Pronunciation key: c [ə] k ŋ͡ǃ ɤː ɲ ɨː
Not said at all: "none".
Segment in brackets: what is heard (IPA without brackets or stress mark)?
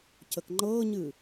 ə